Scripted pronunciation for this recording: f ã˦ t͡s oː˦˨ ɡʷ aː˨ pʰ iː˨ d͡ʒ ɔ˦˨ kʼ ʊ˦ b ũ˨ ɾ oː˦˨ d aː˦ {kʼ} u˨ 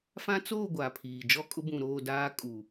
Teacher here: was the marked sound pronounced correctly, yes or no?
yes